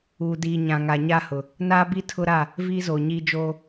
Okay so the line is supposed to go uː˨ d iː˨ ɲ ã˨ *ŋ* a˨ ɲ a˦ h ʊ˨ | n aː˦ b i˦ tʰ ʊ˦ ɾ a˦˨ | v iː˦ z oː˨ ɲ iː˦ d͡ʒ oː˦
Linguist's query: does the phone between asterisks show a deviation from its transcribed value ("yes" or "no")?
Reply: no